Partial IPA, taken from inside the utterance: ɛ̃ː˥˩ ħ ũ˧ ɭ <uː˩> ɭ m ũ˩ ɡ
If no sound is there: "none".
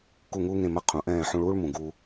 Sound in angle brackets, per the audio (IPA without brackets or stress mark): uː˥